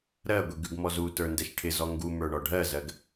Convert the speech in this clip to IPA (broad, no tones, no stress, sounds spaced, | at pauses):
ɾ ɜ ɡʷ i ɡ ʉ ɡ m ɔ z u t ə˞ n d ɛ ʃ ʈʰ ɪ z ɔ ŋ ɡ u m ə˞ ɳ ɔ ɖʱ ɜ z ɜ ɡ